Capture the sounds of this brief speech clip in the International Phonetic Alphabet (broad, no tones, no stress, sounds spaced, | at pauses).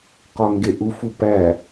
q ɒ ŋ ɡ e ʔ u f u p æ